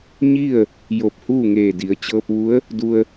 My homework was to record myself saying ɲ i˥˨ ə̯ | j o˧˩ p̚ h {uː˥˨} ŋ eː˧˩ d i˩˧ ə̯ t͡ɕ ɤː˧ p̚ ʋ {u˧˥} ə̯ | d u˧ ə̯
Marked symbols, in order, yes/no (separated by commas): yes, yes